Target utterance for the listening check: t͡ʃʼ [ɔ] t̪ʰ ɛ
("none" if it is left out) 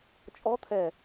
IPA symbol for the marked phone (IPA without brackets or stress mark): ɔ